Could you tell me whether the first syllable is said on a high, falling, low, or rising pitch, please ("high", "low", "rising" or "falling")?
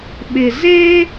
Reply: low